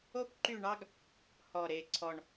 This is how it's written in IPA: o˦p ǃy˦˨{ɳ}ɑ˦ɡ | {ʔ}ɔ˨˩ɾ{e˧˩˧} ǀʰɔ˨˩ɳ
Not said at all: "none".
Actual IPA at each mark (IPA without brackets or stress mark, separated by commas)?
ɳ, h, e˨˩